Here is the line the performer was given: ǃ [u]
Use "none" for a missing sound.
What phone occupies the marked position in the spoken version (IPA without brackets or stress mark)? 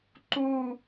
u